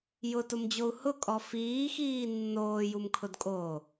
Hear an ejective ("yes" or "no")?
yes